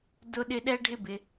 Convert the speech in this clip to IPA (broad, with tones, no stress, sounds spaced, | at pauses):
d ʊ˦ ɗ ɪ˦ ɗ ɛ˦ ɖʱ ɪ˦ b ɪ˧